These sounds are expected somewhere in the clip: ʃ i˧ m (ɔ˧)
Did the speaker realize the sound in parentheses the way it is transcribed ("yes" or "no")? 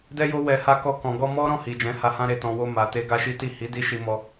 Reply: no